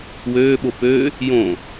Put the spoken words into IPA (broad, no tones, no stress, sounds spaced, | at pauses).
w øː ɓ o p ø | j õ